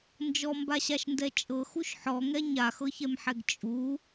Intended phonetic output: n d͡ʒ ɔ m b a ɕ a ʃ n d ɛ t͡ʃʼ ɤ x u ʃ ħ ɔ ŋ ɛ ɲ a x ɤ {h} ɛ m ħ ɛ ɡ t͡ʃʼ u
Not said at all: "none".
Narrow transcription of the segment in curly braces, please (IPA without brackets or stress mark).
ç